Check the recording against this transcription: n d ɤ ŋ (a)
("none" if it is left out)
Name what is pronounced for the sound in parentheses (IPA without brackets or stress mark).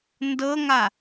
a